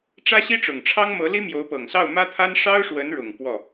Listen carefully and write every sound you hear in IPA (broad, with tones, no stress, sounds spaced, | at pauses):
ʈ͡ʂ ä˥ ɕ i˥ ʈ͡ʂ ʊ˨˩ ŋ ʈ͡ʂʰ ɑ˥ ŋ m ɤ˧˥ l i˥ m j o˧˥ ʊ̯ p ɤ˨˩ ŋ s ɑ˥˩ ʊ̯ m ä˥ t̪ʰ a˥ n ʂ ɑ˥ ʊ̯ ʂ w ə˧˥ n ɻ ʊ˨˩ ŋ p w ɔ˥˩